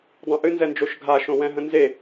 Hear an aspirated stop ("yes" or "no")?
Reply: no